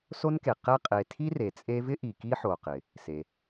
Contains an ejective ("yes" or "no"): yes